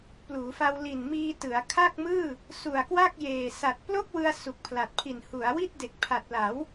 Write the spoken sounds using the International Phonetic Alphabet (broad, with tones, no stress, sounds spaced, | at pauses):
p l uː˩˦ f a˧ w l i˨˩ n m iː˧ t ɯ˩˦ a̯ kʰ a˥˩ k̚ m ɯː˥˩ | s u˨˩ a̯ k w a˥˩ k̚ j eː˨˩ s a˨˩ t̚ p l o˥˩ k̚ w ɯ˧ a̯ s u˨˩ k̚ pʰ l a˨˩ t̚ pʰ i˨˩ n h u˩˦ a̯ w i˥˩ t̚ d e˨˩ k̚ pʰ a˨˩ t̚ l a˩˦ w